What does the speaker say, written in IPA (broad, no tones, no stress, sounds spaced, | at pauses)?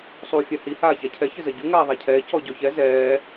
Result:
sˤ uː fʲ a h i h aː ç a cʰ ɛ ç ɘ z ɐ ɟ u ŋ aː ðˤ a cʰ ɛː c ɔ ɟ ɔ ç ɛ z ɛː